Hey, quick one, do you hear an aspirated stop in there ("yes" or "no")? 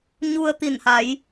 no